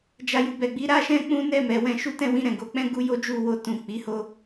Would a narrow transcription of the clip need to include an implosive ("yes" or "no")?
no